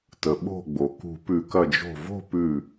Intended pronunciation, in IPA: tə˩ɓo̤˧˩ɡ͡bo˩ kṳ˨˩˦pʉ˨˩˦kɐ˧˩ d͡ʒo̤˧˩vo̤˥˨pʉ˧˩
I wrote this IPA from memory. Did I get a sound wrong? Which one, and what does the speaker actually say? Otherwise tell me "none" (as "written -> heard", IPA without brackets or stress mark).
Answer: none